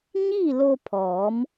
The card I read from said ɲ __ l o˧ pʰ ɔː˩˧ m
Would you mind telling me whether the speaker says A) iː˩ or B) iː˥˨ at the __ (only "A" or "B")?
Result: B